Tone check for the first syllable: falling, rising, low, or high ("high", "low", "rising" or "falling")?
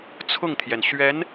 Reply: falling